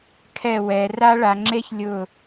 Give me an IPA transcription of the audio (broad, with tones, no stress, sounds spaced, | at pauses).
kʰ ɛ˦˨ w ɛ˨˦ r a˥ ɭ a˨˦ ŋ͡ǁ e˥ ç lʲ ʊ˦˨